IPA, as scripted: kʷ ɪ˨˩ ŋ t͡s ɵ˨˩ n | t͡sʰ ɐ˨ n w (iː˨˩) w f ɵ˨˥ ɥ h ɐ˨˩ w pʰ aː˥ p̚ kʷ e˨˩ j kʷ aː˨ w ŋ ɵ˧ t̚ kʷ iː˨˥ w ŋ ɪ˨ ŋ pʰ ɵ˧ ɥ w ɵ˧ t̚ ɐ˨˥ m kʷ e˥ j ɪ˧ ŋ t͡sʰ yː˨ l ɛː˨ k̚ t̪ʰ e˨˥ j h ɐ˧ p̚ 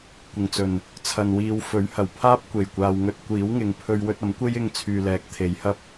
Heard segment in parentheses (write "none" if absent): iː˨˧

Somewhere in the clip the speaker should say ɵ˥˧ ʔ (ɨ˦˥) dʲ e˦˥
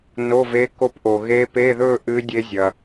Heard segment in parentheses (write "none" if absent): ɨ˦˥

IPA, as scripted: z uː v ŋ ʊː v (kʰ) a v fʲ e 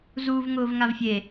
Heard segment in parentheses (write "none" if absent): ŋ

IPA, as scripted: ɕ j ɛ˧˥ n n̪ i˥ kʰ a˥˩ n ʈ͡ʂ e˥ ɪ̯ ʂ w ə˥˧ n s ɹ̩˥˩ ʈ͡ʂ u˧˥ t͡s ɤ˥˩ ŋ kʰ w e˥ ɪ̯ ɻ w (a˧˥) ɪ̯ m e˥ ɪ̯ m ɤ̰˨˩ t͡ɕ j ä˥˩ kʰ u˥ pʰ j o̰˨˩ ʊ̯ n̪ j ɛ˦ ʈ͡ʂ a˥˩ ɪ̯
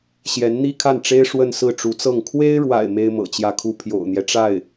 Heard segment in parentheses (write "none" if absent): a̰˨˩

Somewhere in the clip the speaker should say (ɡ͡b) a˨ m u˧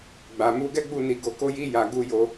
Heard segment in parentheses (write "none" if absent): ɡ͡b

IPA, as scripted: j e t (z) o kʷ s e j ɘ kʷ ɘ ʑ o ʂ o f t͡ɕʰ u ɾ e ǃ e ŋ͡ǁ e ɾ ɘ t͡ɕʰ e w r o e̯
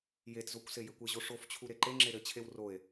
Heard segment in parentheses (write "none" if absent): z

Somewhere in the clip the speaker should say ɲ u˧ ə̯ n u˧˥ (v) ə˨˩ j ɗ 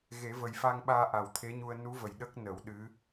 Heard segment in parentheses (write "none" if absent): v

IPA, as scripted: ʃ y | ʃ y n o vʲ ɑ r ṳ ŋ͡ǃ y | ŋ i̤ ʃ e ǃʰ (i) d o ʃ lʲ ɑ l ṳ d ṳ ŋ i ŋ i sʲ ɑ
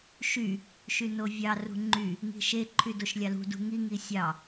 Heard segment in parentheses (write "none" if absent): y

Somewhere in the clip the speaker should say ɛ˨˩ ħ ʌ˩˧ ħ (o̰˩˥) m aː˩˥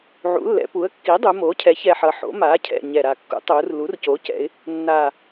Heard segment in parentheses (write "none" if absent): o̰˩˥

